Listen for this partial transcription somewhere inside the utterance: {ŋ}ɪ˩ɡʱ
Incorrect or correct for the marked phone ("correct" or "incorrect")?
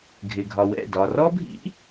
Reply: incorrect